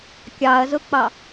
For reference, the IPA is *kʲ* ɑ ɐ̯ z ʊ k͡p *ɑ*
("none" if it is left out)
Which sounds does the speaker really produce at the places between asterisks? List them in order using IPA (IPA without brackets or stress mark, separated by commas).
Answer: kʲ, ɑ